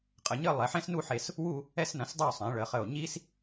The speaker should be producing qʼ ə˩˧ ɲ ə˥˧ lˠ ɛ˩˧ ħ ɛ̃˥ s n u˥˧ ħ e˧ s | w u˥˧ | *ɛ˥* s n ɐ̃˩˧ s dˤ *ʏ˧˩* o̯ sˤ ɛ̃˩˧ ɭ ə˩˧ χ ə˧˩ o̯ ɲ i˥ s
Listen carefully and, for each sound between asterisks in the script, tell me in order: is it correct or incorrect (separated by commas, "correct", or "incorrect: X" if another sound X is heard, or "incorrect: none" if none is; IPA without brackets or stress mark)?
incorrect: ɛ˧, incorrect: u˧˩